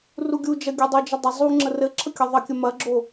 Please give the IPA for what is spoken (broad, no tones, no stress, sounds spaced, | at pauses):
r u ɡʲ u d͡ʒ ɐ ɡʲ u dˤ o d͡ʒ ə dˤ ə zˤ u ŋ͡ǁ ə r ɘ ǁʰ ə kʲ ɐ ðˤ ə kʲ ə m ɐ ɡ͡ǁ o